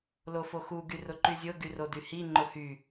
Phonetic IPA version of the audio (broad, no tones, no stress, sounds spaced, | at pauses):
l o f o x u ɡ y r ʊ ǃ y zʲ o ɡ y r o d y h i ŋ͡ǃ ʊ h y